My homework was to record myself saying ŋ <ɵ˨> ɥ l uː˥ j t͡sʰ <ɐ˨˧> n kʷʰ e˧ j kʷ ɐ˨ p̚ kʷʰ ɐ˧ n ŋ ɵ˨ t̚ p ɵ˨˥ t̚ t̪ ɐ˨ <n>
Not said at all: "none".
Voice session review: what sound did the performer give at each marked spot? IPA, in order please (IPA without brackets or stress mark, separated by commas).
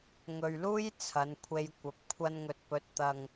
ɵ˨, ɐ˨˧, ŋ